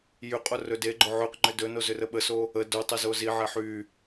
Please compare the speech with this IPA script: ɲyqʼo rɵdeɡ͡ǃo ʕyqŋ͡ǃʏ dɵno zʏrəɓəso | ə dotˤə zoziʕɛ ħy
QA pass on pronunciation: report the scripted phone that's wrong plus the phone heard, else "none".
ɲ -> j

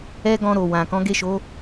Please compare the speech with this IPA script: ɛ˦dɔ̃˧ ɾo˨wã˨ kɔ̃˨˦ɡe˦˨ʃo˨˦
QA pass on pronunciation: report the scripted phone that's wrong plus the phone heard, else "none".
d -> ɡ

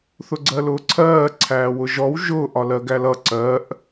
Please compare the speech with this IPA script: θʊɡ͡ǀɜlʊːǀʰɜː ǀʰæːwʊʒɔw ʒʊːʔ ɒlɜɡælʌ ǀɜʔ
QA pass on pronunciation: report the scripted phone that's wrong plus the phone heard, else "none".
none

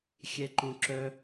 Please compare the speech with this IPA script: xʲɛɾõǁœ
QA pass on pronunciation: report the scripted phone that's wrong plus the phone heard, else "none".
ɾ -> ǃ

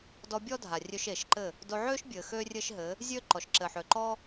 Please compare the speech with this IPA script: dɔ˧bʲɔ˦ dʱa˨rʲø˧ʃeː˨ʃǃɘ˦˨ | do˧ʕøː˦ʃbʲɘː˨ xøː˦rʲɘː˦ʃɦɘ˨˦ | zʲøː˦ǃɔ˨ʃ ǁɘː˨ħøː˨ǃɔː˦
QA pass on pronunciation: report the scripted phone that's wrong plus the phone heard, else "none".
none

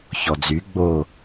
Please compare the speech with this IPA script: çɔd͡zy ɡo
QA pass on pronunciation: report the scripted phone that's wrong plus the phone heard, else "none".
ɡ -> ɡ͡b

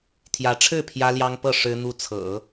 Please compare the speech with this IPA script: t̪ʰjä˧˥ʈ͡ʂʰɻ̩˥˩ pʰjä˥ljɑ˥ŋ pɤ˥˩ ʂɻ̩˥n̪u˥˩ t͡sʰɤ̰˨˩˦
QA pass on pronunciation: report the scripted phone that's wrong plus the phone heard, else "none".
none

